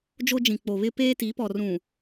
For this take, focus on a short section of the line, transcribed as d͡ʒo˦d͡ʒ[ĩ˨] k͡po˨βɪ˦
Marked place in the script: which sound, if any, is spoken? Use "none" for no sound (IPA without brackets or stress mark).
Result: ĩ˨